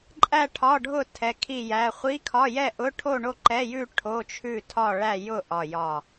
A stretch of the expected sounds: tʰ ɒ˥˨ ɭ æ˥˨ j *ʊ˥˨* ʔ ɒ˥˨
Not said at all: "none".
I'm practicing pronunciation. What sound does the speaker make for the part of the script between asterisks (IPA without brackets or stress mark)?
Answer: ʊ˥˨